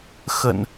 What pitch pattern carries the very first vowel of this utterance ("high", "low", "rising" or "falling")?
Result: low